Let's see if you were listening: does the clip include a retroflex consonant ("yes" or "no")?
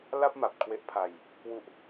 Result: no